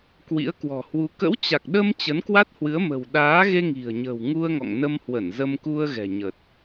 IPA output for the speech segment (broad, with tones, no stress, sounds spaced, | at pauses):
k w ḭ˧˥ ə̯ k w ɔ̤˨˩ h w u˨˦ k ə̰˧˥ w t͡ɕ a˨˩ k̚ ɗ ə˧ m t͡ɕ ə˨˦ n k w a˦˥ t̚ h w ɨ˨˦ ə̯ m ə̤˨˩ w ɗ aː˨˦ ɣ e˧ ŋ i̤˨˩ ə̯ ɲ ə̤˨˩ w ŋ u˧ ə̯ ŋ ɔ̰˧˨ ŋ n ə˧ m h w ə˧˩ n z ə˧ m k u˧ ə̯ ɣ ɛ̤˨˩ ɲ ə˨˩ t̚